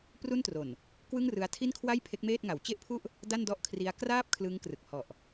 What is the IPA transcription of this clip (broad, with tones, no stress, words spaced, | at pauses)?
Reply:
pru˥˩ntro˨˩n | kwɯ˥˩ŋrɯ˦˥a̯ tʰi˥˩nkʰwa˥˩j pʰe˦˥k̚meː˥˩t̚ŋa˩˦w t͡ɕe˥˩ʔpʰu˥˩ʔ | da˥˩ndɔ˥˩ʔkʰri˦˥a̯ kraː˥˩p̚ kʰlɯ˦˥ŋkrɯ˨˩k̚hɔ˨˩ʔ